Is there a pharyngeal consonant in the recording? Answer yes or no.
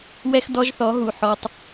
yes